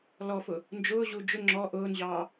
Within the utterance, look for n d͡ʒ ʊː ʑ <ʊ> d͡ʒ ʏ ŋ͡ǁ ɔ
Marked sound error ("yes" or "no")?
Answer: yes